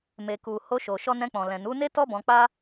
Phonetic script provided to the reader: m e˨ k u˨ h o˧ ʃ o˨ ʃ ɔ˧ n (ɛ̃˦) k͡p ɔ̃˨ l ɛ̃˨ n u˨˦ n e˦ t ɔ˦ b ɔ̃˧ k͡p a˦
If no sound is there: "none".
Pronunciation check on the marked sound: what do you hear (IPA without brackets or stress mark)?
ɛ̃˧